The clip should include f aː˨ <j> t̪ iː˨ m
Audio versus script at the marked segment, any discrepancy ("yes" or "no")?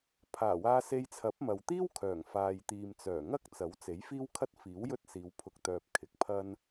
no